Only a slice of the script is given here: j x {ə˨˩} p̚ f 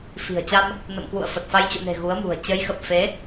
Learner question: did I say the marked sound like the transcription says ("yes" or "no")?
yes